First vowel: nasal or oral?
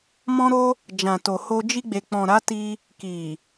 nasal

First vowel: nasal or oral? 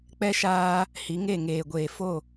oral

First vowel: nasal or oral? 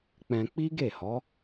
nasal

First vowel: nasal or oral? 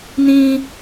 nasal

